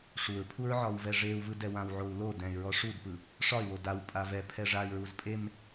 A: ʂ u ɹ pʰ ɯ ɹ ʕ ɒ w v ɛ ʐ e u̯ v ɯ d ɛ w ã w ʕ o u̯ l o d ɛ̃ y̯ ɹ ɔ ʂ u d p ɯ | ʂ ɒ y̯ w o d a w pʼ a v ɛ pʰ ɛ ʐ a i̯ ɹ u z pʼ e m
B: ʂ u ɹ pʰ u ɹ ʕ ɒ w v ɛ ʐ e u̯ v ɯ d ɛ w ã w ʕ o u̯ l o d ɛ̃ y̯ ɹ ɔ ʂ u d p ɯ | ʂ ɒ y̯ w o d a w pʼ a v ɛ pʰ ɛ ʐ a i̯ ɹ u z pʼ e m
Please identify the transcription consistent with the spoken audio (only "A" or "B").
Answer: B